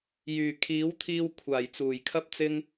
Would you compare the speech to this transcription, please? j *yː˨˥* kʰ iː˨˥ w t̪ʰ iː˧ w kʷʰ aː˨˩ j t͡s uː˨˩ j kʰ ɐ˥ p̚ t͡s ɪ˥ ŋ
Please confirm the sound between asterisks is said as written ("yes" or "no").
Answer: no